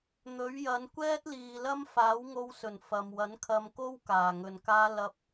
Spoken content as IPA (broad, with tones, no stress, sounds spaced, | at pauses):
n̪ ɵ˨˥ ɥ j ɐ˨˧ n kʷ ɛː˥ t̚ l iː˨ l ɐ˥ m f aː˨˥ w ŋ o˧ w s ɵ˨˩ n f ɐ˨ m w ɐ˨˥ n kʰ ɐ˧ m k o˥ w k aː˨˩ ŋ ɵ˨ n k aː˥ l ɐ˧ p̚